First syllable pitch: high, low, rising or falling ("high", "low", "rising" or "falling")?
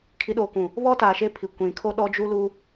rising